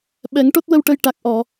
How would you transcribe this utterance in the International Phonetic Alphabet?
ɓ ɛ˨˩˦ ŋ ʈ o˦˥ t̚ w ə˧ w ʈ ə˧ j ʈ a˨˩ k̚ ʔ ɔ˨˩˨

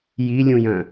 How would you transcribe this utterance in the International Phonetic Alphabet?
j i lʲ ũ j œ̃

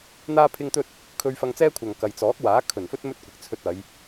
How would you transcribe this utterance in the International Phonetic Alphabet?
n̪ aː˥ pʰ ɪ˥ ŋ t̪ ɵ˥ t̚ | kʰ ɵ˧ ɥ f ɐ˧ ŋ t͡s ɛː˥ kʷʰ ɐ˨ ŋ k ɐ˨ j t͡s ɔː˨˥ k̚ w aː˨˥ kʰ ɵ˨˩ n f ɵ˥ t̚ m ɵ˥ t̚ kʷ ɪ˨˥ k̚ t͡sʰ ɵ˧ t̚ ɐ˨˧ j

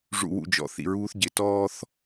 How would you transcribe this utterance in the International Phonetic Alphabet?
ʐ ṵ˨ w ṵ˨ d͡ʒ ɔ̰˨ θ ḭ˨ ɹ uː˦ θ ɟ ɪ˨ t ɔː˦ θ

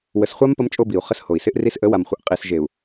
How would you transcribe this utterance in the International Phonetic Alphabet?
w ə˨ s χʷ a˦ m p ə˦ m t͡ʃʼ o˦ b i˨ u̯ χ ə˦ s h o˨ i̯ s ɪ˦ ʔ r i˦ s ʔ ə˨˦ w a˨ m χʷ ə˨ ʔ qʼ i˨ s ʒ e˨ u̯

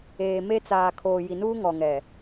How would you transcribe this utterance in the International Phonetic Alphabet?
eː˨ m e˦ t͡s aː˨ kʰ oː˨ j i˨ n uː˦ ŋ ɔ˨ ŋ ɛ˨

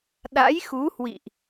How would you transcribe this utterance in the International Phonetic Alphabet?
ɗ a̰˧˥ j x u˨˦ h w ḭ˧˨ ʔ

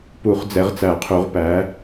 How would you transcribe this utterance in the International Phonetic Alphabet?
p u˨˩˦ χ d͡z ɛ˨˦ ʁ t͡s æ˨˩˦ qʰ u˨˦ ʁ p æ˨˦

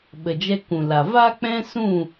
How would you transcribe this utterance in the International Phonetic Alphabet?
ɓ ə˨ d͡ʒ ɛ˧ k ũ˨ l a˨ v a˦ k͡p ɛ̃˦ s ũ˦˨

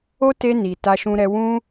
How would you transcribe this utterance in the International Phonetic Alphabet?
o˦ t e˧ n i˨ t a˧ ʃ ũ˧ ɾ ɛ˧ w ũ˦

